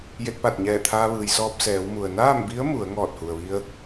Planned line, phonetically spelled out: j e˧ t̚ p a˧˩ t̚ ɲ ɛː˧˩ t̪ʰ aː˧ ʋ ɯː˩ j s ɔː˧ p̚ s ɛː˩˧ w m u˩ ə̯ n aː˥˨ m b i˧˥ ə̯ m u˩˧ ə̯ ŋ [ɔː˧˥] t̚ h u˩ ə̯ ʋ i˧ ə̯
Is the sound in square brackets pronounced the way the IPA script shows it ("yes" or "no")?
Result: no